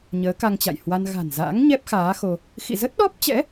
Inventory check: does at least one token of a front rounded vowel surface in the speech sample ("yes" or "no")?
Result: no